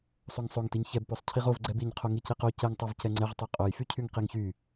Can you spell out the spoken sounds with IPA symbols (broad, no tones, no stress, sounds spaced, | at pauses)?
sˤ o ŋ sˤ o ŋ t i ɲ ç ɛ b p o sˤ cʰ i ʁ o v ɡ͡ǀ ɛ b i ɲ qʰ o ŋ i c i q o c ɛ ŋ tˤ o v c ɛ ŋ͡ǀ ɛ ʁ tˤ y qʼ o j f y cʰ y ŋ q i ŋ ç y